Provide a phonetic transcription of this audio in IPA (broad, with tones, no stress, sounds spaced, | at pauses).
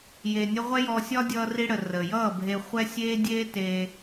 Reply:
j e˧ nʲ ə˦ ʁʷ ɛ˦ j ɔ˧ sʲ ɒ˦ dʲ ʌː˧ r i˧ ɽ ə˨ r ə˨ j ʌː˦˨ bʱ e˧ χʷ ɛ˦ sʲ eː˦ dʲ eː˦ t e˧